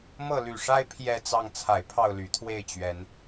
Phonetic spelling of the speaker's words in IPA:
mɤ˥˩ly˨˩ʂa˥ɪ̯ pʰjɛ˥˧t͡sɑ˥˩ŋ t͡sʰa˨˩ɪ̯pʰɑ˥˩ʊ̯ly˨˩ t̪ʰwe˥˩ɪ̯ t͡ɕɥɛ˧˥n

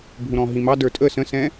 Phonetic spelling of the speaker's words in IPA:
bʱũɾɔ̃ɦĩmɑ də˞tʼə sə̃sɛ̃

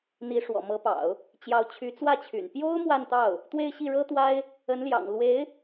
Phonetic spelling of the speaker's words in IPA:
n̪i˧˥ʂwɔ̰˨˩mɤ˧˥pɑ̰˨˩˦ʊ̯ | t͡ɕjɑ˧˥ʊ̯t͡ɕʰy˧˥t͡swä˥˩t͡ɕʰy̰˨˩n pjo˥ʊ̯ mwa˥˧nt̪ɑ˥˩ʊ̯ | t̪we˥˧ɪ̯ɕi˥˩ɻɤ˥t̪wa˥ɪ̯ | ə˧˥nljɑ̰˨˩ŋ lwe˧˥ɪ̯

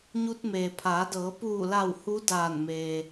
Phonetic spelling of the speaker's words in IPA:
ɲu˧t̚meː˩pʰaː˩˧dɤː˩˧ puː˧˩la˧˩w hu˧˥daː˧˩nme˩

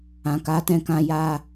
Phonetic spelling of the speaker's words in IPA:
ã˨ka˨˦tɛ̃˧kã˧ ja˧

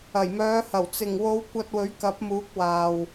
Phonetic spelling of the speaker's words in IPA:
ɐ˨˩jmœː˨˧hɐ˨˩w t͡sɪ˨˩ŋwo˨˧w kʷɐ˧t̚wɵ˨˥ɥkɐ˨˥p̚muː˨˥k̚ waː˨w

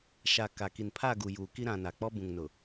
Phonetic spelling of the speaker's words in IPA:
ʃa˨ ka˨ki˨npʰa˦˨ɡu˨ juː˨ki˦ ɾã˨ na˨k͡pɔ˦ bũ˨ŋnʊ˨

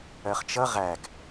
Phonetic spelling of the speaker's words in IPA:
ɜχt͡ʃʌ ʁæɡ

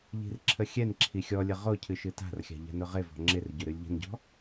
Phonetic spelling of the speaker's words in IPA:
ʎi̤rǁʰəxʲɛnǁʰi xʲɔlʲə ʁocʰɨ ʃɨta̤rxʲa̤ ʎa̤nʊʁɪvɔ̤ ŋ͡ǁɪrɟʊ ɾɨlʲʎə̤nɟɔ̤

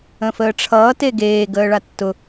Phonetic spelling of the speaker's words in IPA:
ə̃fəːʈ͡ʂʰʌː teɡeː ɡəːɭatːʊ

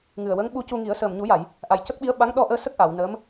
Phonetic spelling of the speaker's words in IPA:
ŋɨ˨˩ə̯wə˧˥ŋ ɓu˧cu˧ŋi˨˩˦ə̯ səː˨˩mɲu˨˩˦ja˨˩˨j | ʔa˨˩jcə˦˥k̚ɓi˧˥ə̯ɓa˧˥ŋ ɗɔ˧ʔəː˧sə˦˥k̚ ʔa˨˩˨wnəː˧˥m

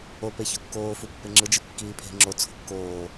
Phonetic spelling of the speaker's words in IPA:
ope çokːoːfu pːeŋ͡ǁɯd͡ʒɯ kːiːpʰe̤ ŋ͡ǁo t͡sʰo̤kːoː

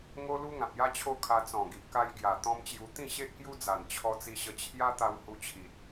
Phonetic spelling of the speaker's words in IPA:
ŋo˦lu˦ ŋã˨p̚ja˦t͡ɕʰo˦kʰa˧ t͡sɔ̃˨˩ɡi˨ʔka˧j ɡja˨˩ t̪ɔ̃˦mt͡ɕju˧ t̪ĩ˥˧ɕe˦ʔkju˦d͡za˨˩n t͡ɕʰɔ˧ t͡si˧ ɕə˧ t͡ɕʰja˦t̪a˧w hu˧t͡ɕʰi˨t̚

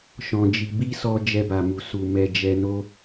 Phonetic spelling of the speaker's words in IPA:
ʃɔ̃˧d͡ʒi˧ bi˦sɔ˧ d͡ʒɛ˧ba˨mu˨ su˨ mɛ˨ d͡ʒɛ˧no˦

